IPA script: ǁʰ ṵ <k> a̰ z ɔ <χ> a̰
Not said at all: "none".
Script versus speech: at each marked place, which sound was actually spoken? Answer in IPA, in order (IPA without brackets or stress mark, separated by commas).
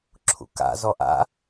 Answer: k, ʔ